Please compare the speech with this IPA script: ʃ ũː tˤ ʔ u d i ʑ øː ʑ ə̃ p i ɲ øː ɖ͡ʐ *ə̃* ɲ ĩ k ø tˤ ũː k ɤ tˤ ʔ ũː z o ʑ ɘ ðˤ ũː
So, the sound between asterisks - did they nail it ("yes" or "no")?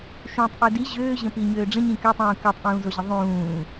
yes